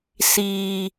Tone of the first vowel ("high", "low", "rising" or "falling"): low